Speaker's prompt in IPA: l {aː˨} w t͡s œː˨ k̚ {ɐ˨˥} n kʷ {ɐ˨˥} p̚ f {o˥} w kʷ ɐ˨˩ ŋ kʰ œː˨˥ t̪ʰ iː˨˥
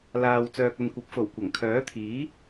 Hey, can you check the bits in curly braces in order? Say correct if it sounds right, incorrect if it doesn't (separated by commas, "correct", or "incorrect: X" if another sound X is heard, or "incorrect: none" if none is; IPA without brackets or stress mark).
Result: correct, incorrect: ɐ˨, correct, incorrect: o˨˩